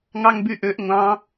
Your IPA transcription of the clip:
ŋ ɑ ŋ b y ʔ ø ʔ ŋʷ ɑ̃

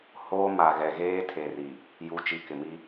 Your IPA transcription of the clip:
h oː˦ m a˨ ɣ ɛ˨ ɣ eː˦ tʰ e˨ r i˨ | j u˨˦ t͡ʃ i˨ k ɪ˨ m i˦

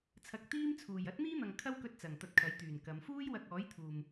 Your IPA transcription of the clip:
t͡sʰ ɐ˨ k̚ t̪ iː˥ m t͡sʰ uː˨˩ j ɐ˥ t̚ n̪ iː˥ n̪ ɐ˨ ŋ kʰ ɐ˥ w k ɵ˧ t̚ t͡s ɐ˨˩ ŋ t̪ ɐ˧ t̚ kʰ ɐ˨˥ j t̪ yː˨˩ n k ɐ˨˧ m f uː˥ j w ɐ˧ k̚ ɔː˨˥ j t̪ʰ uː˨ m

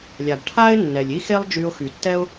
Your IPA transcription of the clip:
lʲ a˩ b ʈʰ a˥ ɪ̯ nː ɛ˩ lʲ i˥ x e˥ lˠ d͡ʒ y˧ ʊ̯ x y˩ tː ɛ˥ ʊ̯

